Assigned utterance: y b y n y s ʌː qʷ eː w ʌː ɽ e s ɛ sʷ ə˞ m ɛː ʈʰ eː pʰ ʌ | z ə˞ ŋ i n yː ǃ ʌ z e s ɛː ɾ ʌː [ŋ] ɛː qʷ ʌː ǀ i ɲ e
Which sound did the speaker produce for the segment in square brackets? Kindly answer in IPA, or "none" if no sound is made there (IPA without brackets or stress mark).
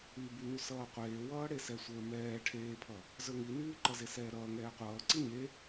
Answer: ŋ